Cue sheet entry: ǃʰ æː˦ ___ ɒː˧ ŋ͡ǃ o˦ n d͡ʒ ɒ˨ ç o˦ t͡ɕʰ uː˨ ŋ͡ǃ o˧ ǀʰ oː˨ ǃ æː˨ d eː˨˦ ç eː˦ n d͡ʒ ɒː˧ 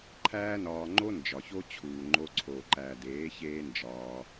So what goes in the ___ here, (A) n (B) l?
A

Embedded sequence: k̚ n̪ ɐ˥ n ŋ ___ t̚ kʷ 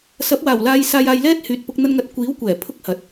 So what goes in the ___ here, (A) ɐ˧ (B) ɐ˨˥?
A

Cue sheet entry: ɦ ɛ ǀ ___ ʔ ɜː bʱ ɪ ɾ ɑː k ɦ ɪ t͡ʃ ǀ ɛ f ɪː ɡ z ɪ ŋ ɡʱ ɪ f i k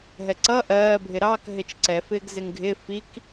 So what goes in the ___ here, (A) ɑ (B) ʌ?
B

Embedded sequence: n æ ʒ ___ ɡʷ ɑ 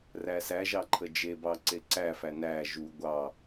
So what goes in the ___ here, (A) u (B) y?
A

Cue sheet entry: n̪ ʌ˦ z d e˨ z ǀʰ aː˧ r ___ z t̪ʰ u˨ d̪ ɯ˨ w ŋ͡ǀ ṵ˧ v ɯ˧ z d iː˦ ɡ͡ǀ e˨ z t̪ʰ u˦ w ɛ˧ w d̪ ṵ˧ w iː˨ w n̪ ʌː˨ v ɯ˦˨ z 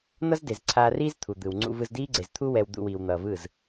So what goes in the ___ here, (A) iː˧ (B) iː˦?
B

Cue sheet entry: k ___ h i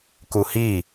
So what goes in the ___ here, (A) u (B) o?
A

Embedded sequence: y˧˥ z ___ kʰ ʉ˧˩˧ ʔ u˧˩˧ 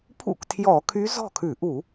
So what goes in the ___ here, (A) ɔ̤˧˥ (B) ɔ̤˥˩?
B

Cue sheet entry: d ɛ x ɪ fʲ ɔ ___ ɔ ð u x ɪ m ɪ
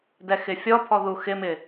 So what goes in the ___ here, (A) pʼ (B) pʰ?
B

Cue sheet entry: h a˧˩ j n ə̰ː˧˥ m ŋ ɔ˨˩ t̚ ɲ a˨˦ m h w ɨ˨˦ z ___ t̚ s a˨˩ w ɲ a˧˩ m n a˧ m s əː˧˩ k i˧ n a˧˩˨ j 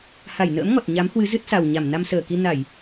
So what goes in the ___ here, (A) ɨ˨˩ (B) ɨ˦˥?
B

